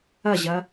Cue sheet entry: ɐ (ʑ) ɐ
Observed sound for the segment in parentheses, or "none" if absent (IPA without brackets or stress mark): ʑ